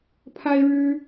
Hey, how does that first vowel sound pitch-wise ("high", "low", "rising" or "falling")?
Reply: high